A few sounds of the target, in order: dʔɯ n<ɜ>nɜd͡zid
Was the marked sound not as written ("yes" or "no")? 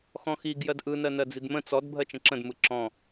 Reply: no